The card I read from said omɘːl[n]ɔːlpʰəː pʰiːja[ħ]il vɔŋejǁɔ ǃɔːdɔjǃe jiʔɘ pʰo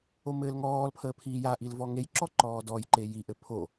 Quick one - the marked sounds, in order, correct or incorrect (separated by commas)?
incorrect, incorrect